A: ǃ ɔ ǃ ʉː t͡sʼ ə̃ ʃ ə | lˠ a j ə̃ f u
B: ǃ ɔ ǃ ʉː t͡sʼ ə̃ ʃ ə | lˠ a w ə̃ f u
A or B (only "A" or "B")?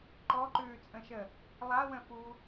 B